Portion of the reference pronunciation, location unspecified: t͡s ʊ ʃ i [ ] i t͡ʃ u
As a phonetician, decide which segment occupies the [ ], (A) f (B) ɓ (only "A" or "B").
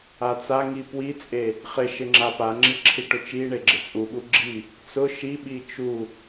B